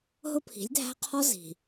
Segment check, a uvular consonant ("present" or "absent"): present